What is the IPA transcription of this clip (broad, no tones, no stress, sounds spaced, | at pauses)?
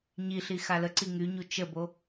ɲ i ɬ i x a l ə ǀ i ŋ y ɲ u t͡ʃ ə b o